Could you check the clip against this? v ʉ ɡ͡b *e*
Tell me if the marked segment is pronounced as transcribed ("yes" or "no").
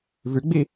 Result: no